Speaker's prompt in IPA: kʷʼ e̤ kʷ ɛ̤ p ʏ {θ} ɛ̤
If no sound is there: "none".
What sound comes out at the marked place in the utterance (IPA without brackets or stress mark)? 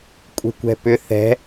θ